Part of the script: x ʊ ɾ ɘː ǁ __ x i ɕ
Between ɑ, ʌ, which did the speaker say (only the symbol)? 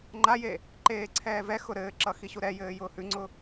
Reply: ʌ